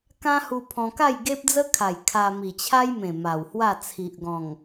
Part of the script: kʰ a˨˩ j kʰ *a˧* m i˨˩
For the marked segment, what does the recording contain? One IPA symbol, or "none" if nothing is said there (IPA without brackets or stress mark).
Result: a˧